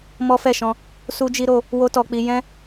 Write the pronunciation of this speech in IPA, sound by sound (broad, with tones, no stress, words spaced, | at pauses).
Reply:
mɔ˦fɛ˦˨ʃɔ̃˧ | su˦d͡ʒi˦ ɾo˧ | wo˦tɔ˧k͡pi˧ jɛ̃˦